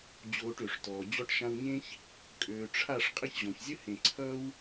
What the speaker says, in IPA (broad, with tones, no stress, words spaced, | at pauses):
d͡ʑoː˨ʈ ø˨ʂtɔː˨ d͡ʑɔ˧ʈʃã˧wɲẽ˦ç | kʼøː˨ʈ͡ʂʰa˦˨ʂ qʼə˦˨çʑɔ̃˨çzʲə˦ hẽ˨ ǀʰʌː˦w